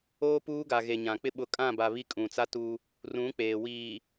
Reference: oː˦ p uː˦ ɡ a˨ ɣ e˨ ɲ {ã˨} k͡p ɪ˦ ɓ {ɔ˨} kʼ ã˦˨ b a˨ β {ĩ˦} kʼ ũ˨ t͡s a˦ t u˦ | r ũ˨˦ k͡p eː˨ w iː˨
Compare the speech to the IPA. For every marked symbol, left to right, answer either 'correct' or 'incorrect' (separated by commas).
correct, incorrect, incorrect